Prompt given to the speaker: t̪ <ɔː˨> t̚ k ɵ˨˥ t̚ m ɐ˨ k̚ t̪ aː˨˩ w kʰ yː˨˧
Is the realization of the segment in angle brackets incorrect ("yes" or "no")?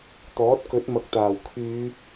yes